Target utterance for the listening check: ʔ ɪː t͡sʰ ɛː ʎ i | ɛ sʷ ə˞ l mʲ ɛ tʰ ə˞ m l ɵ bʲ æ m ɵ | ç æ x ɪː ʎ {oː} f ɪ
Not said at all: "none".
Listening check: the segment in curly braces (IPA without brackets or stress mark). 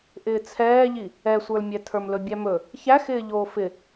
oː